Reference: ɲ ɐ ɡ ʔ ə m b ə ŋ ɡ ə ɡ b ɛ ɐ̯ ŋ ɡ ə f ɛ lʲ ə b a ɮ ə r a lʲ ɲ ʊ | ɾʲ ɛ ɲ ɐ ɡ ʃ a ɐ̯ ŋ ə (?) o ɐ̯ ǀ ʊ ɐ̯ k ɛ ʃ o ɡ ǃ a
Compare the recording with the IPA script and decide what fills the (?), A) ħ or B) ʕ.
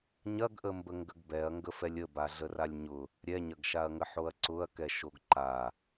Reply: A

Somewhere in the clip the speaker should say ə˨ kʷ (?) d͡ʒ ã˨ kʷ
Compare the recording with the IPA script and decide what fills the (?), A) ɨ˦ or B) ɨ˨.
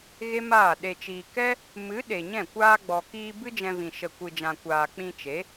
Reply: B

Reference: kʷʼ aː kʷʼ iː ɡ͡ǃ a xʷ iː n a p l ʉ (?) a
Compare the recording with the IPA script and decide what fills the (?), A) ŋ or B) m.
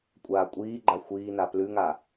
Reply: A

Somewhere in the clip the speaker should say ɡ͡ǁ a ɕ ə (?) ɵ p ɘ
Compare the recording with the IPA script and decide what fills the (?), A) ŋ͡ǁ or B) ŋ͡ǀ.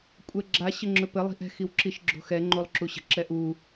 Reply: A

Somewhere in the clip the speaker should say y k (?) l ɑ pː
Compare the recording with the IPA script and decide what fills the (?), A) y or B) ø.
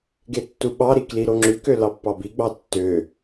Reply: B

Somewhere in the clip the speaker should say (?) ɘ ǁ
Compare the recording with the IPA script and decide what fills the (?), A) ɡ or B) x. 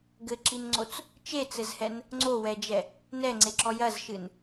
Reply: A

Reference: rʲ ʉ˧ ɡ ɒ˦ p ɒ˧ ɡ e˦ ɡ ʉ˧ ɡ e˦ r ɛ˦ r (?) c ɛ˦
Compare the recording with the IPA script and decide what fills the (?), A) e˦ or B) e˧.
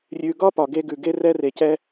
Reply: B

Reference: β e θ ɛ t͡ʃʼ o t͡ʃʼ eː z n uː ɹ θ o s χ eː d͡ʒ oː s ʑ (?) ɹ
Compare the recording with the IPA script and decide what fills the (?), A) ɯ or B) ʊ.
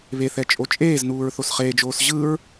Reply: A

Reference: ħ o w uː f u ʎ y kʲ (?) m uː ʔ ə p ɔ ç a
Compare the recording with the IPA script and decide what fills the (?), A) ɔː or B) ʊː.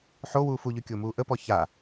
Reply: B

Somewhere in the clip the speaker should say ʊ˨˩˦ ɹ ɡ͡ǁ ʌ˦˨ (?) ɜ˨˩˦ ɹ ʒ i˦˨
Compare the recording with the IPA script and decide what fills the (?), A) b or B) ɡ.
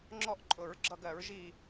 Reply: B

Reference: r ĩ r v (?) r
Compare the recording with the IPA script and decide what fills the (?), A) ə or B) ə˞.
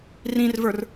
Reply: B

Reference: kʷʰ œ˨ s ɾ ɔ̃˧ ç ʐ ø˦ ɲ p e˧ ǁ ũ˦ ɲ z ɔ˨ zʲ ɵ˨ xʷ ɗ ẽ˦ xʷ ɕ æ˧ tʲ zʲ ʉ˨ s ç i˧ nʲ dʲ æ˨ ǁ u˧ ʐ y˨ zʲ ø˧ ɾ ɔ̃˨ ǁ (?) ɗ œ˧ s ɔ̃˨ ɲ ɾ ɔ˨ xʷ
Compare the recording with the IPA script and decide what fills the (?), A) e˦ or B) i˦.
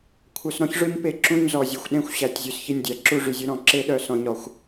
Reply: A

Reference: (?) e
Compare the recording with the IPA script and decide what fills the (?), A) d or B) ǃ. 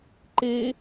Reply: B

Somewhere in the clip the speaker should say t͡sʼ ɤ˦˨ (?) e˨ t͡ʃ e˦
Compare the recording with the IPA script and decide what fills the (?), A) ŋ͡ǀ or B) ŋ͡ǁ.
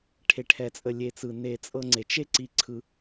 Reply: A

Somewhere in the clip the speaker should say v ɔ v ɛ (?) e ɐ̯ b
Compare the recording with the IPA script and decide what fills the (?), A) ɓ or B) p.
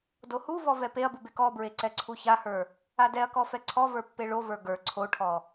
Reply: B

